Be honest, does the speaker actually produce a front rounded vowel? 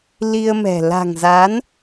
no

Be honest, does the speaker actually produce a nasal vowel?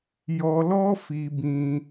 yes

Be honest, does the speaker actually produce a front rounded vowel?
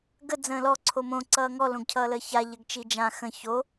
no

